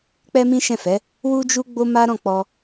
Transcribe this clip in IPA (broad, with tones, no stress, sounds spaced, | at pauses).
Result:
k͡p ɛ˦ m ĩ˦ ʃ ɛ̃˦˨ f ɛ˨˦ | w u˦ d͡ʒ u˦ ɡ͡b o˦ m a˦ ɾ ɔ̃˦˨ k͡p ɔ˧